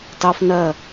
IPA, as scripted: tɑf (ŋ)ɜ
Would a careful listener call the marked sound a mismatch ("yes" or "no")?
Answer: yes